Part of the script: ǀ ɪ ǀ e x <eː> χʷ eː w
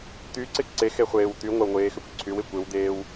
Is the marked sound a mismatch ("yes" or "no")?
yes